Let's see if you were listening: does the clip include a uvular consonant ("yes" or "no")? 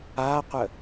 yes